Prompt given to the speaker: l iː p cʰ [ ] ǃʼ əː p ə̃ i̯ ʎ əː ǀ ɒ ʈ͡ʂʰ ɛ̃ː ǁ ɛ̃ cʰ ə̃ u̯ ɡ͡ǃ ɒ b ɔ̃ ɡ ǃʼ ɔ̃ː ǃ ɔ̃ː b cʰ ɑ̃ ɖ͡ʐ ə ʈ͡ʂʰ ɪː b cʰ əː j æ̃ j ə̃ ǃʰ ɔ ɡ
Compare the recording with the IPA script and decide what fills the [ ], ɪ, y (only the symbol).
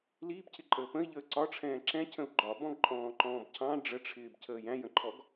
ɪ